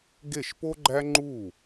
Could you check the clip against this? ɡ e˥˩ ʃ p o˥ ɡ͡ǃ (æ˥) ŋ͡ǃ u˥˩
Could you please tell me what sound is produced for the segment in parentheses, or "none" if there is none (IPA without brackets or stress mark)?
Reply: æ˥